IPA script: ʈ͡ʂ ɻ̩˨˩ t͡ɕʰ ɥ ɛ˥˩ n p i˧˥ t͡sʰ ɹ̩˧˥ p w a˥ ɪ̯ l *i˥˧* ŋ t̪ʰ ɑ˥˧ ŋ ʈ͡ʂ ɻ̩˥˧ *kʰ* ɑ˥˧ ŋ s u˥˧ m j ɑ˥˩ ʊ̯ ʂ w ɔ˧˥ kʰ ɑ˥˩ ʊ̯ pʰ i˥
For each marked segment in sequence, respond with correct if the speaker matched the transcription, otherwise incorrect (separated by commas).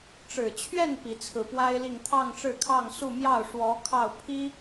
correct, correct